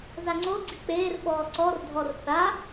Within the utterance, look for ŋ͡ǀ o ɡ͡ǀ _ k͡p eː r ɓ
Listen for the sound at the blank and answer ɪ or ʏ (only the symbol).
ɪ